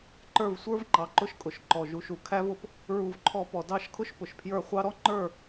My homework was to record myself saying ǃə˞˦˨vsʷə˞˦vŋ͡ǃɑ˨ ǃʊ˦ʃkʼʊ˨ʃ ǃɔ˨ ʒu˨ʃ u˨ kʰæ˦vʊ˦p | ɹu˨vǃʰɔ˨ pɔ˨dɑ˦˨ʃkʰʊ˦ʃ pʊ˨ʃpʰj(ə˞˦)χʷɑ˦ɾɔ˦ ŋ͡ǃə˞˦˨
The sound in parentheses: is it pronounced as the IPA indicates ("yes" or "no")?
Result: no